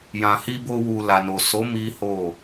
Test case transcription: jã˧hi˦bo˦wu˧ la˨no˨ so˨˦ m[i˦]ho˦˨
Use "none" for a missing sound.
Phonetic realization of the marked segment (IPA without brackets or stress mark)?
i˦